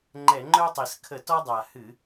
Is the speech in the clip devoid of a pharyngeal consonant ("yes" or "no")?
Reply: yes